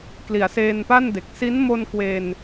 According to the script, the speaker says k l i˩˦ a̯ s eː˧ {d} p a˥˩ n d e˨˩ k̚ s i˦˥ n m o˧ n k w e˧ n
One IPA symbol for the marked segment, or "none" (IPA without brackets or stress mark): n